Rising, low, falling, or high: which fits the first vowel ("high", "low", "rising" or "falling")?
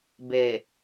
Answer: low